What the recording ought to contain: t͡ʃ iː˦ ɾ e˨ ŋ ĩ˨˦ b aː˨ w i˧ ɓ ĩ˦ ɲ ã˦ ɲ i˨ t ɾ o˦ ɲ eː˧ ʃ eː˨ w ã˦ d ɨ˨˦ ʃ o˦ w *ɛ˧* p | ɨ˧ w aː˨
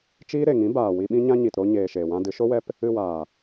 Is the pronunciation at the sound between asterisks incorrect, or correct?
correct